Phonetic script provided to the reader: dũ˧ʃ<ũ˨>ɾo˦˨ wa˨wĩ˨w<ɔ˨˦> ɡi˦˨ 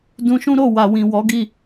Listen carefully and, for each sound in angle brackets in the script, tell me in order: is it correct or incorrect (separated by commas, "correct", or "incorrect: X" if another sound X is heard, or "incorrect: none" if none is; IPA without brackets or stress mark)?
incorrect: ũ˦, correct